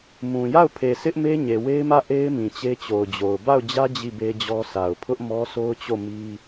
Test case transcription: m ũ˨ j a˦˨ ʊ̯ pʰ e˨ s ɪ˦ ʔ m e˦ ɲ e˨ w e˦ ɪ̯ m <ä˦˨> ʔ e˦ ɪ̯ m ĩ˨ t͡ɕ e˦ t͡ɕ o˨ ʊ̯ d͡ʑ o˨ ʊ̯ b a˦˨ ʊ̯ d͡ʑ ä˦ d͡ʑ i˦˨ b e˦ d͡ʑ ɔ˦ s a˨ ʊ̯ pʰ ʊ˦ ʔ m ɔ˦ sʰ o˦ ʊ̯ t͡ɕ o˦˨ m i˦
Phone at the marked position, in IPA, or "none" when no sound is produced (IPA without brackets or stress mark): ä˦˨